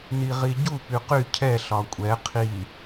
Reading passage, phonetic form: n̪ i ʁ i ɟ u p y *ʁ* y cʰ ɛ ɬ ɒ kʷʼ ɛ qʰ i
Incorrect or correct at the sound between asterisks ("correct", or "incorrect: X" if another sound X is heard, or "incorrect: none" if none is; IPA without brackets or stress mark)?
incorrect: q